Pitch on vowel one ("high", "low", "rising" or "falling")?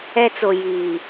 high